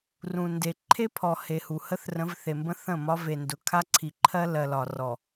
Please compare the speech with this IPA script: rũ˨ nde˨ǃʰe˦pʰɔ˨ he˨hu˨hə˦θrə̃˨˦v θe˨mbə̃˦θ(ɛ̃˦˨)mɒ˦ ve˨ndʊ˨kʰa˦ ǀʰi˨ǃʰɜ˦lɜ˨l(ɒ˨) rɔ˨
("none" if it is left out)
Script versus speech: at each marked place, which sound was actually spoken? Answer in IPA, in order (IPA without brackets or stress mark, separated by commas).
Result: ə̃˦˨, ɒ˨